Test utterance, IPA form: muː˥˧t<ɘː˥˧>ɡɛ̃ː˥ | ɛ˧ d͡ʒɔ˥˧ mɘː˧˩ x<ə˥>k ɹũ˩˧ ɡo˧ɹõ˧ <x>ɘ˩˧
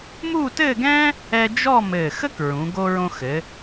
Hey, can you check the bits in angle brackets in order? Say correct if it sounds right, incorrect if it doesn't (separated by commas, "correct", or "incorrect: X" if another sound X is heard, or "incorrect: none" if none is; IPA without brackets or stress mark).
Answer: correct, correct, correct